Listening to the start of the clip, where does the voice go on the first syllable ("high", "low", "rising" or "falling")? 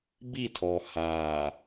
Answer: falling